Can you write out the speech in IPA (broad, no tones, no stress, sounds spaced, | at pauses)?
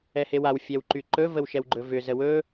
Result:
ɛ h e w a w fʲ ɛ w ǃ y ǃ ɵ v ə w ʃ ɛ w ɡ͡ǃ ɵ v ʏ z ə w ɵ